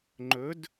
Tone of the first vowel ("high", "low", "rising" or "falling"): rising